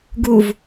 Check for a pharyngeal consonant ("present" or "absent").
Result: absent